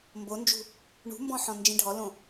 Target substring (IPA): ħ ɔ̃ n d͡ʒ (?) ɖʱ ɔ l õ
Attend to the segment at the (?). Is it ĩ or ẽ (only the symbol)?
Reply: ĩ